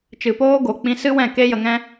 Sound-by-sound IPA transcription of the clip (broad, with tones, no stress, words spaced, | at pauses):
t͡ʃɨ˨poː˧ɡo˨ k͡pĩ˧sɨ˦wɛ̃˦˨ ke˦jə˧ŋɛ̃˦